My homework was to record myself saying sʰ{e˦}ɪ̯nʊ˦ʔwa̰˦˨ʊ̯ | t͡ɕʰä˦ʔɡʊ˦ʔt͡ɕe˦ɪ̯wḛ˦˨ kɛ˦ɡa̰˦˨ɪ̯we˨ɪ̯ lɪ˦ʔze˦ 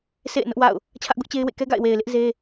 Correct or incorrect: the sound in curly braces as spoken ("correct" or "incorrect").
incorrect